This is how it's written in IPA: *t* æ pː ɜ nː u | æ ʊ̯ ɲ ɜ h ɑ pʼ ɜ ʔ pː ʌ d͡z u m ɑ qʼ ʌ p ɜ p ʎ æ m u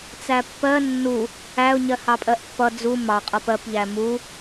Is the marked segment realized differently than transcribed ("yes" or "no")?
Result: yes